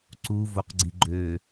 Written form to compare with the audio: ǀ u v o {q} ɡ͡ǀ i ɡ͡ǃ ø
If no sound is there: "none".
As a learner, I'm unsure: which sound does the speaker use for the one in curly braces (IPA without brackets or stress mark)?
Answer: q